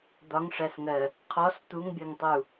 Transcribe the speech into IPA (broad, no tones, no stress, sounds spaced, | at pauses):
d̪ ɒ ŋ ʂ æ s ŋ ɜ | qʰ ɔ s t̪ u ŋ bʲ ɜ ŋ tˤ u